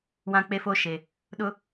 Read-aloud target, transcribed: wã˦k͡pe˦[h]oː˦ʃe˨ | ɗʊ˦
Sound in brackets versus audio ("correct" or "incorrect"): incorrect